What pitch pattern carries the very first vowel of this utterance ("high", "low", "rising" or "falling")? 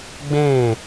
falling